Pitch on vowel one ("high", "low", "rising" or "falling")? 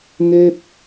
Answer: high